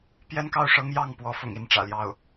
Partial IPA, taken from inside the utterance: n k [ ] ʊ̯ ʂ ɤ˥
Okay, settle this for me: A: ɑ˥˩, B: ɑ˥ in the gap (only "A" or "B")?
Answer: A